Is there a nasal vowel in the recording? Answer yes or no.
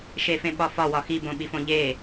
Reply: yes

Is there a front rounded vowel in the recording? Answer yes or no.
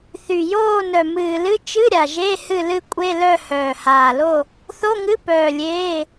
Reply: yes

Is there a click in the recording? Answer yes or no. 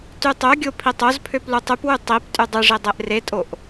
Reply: no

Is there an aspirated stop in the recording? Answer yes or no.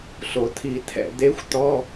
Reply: yes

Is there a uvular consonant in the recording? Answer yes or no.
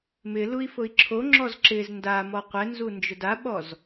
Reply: yes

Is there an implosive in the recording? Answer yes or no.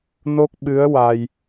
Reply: yes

